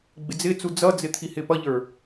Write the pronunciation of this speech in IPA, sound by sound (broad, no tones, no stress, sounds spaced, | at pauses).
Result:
ɡ͡b ɪ d͡z ɪ t͡s u d͡z ʌ d͡z ɪ t̪ʰ i h ɪ p ʌ ʎ ə˞